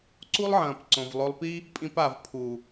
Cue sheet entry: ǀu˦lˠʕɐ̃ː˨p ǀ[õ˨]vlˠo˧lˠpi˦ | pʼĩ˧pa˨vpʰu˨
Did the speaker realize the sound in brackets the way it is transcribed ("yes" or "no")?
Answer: yes